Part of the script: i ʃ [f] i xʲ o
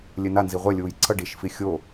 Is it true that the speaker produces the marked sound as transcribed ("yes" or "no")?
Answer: yes